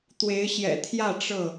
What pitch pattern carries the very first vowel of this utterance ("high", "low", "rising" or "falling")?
rising